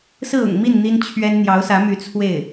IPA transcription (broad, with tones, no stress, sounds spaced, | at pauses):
s ɹ̩˥˩ ʊ̰˨˩ ŋ m i˥˩ n n̪ i˥ n t͡ɕʰ ɥ ɛ˥ n n̪ j ɑ˧˥ ʊ̯ s ä˧˥ m y˧˥ t͡sʰ w e˥˩ ɪ̯